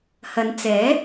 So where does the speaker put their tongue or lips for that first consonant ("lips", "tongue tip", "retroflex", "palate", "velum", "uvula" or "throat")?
throat